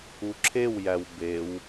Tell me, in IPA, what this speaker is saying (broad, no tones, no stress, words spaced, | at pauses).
uǁʰewjæw bew